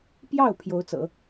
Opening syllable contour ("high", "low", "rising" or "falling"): falling